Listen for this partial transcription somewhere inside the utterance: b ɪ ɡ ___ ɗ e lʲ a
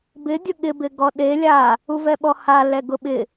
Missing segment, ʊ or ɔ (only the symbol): ɔ